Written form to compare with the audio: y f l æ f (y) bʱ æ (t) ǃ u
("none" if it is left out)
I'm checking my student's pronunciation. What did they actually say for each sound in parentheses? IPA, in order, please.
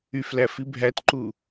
i, t

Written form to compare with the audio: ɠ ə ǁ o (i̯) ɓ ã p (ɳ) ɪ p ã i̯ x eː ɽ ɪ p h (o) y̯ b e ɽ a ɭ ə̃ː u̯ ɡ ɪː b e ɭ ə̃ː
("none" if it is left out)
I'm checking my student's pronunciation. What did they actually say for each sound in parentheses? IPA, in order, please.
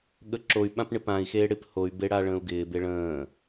y̯, ɳ, o

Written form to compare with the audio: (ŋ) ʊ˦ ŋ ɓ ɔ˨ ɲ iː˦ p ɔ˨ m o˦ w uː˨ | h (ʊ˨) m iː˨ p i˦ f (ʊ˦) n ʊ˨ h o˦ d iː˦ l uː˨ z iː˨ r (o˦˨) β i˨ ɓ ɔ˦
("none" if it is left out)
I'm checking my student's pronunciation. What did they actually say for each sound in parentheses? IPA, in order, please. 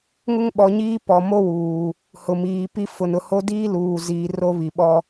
ŋ, ʊ˨, ʊ˨, o˦

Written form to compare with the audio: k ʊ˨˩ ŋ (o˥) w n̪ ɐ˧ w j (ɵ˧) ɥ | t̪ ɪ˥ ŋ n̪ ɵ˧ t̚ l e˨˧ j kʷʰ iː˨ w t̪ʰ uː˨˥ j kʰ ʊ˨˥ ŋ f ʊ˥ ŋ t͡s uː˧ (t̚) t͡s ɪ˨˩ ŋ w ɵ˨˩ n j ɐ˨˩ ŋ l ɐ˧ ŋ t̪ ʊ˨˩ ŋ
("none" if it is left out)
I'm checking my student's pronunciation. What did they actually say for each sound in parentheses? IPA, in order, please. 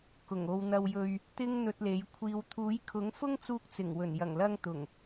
o˨, ɵ˧, k̚

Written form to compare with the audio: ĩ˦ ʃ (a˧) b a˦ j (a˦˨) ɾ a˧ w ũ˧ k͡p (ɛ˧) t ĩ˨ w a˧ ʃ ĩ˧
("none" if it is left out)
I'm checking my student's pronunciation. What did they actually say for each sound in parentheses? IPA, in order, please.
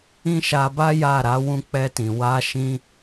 a˧, a˦˨, ɛ˧

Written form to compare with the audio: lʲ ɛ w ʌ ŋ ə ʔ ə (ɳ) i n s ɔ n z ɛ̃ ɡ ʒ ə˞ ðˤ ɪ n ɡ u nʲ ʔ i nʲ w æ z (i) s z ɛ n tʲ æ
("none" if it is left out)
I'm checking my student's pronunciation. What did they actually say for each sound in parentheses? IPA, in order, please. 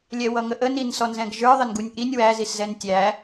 n, i

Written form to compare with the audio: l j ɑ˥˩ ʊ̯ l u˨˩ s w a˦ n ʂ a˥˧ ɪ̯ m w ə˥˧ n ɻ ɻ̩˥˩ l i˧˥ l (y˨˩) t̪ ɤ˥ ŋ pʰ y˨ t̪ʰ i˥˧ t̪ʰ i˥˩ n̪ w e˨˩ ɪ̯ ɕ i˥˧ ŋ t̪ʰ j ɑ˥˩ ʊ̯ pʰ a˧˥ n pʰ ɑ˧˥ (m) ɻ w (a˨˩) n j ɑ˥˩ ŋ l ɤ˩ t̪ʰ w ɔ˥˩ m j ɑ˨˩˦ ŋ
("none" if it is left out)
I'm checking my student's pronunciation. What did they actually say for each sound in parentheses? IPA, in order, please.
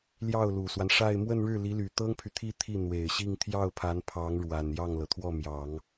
y˨˩, ŋ, a˨˩

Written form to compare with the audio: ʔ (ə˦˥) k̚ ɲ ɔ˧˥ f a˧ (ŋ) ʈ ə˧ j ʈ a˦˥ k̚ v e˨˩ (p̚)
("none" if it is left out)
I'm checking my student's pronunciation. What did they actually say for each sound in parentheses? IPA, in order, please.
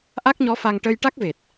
a˦˥, ŋ, t̚

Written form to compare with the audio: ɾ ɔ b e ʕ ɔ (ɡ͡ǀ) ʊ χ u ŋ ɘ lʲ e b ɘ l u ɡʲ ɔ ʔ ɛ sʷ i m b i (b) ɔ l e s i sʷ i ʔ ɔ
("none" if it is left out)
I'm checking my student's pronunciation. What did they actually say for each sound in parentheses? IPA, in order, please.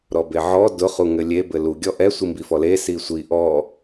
d, f

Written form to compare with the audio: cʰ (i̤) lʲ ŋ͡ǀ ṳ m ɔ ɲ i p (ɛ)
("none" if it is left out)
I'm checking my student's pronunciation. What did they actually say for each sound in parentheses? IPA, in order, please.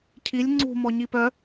i, œ

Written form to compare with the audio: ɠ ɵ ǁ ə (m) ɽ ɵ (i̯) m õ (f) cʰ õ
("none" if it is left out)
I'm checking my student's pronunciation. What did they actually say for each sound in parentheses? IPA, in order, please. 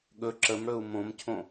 m, u̯, m

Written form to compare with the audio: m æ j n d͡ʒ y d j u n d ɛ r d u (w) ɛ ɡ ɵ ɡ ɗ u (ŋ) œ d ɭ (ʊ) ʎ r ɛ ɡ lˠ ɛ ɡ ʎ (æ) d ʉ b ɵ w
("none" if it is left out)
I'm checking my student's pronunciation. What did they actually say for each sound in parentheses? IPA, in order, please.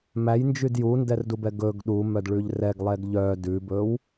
b, m, ʉ, œ

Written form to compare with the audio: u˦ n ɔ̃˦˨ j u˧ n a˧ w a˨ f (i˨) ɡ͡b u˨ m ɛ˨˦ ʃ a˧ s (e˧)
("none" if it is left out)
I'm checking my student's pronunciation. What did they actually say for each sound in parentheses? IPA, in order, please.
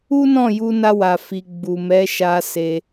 i˨, e˧

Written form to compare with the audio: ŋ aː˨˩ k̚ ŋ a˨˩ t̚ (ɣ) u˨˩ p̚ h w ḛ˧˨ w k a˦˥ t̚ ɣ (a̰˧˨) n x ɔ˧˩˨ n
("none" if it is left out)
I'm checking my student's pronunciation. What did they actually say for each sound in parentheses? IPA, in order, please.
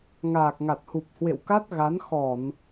h, a˨˦

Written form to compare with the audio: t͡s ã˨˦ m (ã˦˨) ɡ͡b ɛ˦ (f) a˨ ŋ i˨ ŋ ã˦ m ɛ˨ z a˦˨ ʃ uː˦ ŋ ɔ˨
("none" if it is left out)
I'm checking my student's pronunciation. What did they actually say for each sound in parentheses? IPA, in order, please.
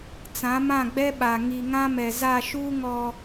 ã˦˨, ɓ

